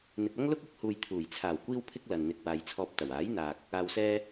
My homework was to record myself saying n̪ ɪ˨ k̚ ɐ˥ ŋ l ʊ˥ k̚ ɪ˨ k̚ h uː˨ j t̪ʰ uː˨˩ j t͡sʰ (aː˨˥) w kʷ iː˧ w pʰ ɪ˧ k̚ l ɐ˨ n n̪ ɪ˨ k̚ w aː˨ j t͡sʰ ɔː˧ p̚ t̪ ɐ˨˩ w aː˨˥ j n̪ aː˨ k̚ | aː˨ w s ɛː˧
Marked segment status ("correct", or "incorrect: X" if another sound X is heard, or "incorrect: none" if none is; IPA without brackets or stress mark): incorrect: aː˨˩